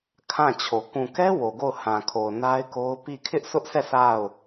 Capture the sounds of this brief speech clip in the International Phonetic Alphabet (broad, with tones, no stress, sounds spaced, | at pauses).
kʰ ã˦˨ t͡ɕʰ o˨ k ũ˨ k ɛ˦ w o˨ ɡ o˦˨ ʊ̯ h ã˨ kʰ o˨ ʊ̯ n a˦ ɪ̯ k o˦ ʊ̯ p i˦˨ kʰ ɪ˦ ʔ s ʊ˦ ʔ s ɛ˦˨ s a˦˨ ʊ̯